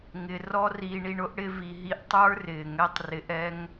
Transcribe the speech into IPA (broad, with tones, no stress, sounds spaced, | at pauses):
ŋ ɪ˧ r ɔ˦ r iː˧ ɳ i˧ ɳ ʊ˦ ʔ ɽ ɪ˦ v i˧ ɦ i˦ ʔ tˤ ə˞˦ r ɪː˨ ŋ ɛ˦ tˤ r ɪ˧ ʔ ɛ˦ ŋ